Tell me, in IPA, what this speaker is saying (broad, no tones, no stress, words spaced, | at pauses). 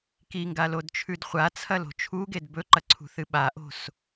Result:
kiŋɡalodt͡ʃʰʉd χʷat͡sʰɐlo̤ t͡ʃʰuɡed bɵǃɐǀʰṳθɨ ɓaʔo̤s